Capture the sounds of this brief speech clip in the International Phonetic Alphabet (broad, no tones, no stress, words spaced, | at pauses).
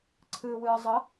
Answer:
ǀʰɨːwɨːzˤʌ